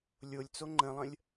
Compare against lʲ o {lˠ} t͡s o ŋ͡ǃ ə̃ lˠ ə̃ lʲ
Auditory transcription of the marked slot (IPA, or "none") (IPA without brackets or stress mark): lʲ